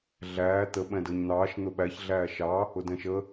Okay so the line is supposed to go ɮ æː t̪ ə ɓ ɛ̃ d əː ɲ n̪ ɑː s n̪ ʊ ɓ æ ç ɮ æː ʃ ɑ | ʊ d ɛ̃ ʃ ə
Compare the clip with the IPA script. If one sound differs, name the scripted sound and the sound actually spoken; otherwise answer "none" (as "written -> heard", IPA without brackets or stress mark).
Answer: s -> ʃ